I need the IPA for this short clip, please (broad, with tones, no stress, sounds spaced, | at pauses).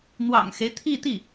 n̪ w ɑ̰˨˩ ŋ x e˦ ɪ̯ t̪ʰ i˥˧ t̪ i˥˩